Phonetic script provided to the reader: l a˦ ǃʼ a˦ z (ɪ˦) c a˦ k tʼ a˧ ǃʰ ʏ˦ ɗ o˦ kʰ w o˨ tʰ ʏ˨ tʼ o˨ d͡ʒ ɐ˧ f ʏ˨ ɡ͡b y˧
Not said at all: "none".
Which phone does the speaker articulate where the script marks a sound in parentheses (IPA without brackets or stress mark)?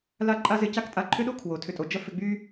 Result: ɪ˧